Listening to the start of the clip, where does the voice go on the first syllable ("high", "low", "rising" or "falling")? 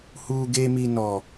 high